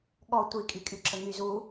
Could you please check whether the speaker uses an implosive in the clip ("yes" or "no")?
yes